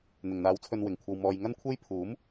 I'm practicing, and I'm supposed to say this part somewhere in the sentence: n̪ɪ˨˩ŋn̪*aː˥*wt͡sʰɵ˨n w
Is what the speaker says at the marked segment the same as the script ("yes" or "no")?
no